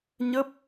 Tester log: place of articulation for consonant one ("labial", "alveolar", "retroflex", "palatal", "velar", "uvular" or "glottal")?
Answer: palatal